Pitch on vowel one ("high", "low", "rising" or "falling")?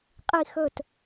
falling